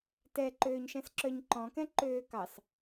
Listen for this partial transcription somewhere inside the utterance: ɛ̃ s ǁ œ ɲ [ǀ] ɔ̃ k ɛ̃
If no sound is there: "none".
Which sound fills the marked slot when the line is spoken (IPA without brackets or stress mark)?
ǃ